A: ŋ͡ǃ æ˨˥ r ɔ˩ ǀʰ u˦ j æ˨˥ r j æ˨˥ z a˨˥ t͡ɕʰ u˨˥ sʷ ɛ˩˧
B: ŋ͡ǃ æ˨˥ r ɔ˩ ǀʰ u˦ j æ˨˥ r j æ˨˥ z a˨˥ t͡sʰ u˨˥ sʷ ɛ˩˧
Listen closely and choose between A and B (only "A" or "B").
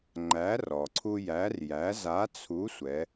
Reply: B